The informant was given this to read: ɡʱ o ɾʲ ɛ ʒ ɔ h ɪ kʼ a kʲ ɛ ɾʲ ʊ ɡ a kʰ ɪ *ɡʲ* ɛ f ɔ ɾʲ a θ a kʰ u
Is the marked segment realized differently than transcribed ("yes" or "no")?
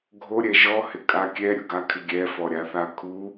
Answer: no